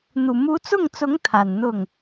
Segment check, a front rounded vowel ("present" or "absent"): absent